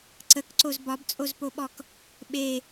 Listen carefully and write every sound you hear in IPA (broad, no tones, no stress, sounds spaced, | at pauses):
ǀ ə k ǀ o z b ɒ b t͡sʼ o z p o ɓ ɔ k | ɓ e